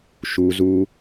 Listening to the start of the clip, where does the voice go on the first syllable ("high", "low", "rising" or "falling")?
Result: low